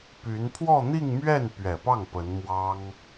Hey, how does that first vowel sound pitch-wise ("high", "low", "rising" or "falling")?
rising